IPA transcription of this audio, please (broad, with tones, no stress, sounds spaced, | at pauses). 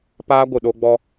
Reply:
p aː˦ ɡʷ ɨ˨ ɗ o˧ ɡ͡b ɔ˧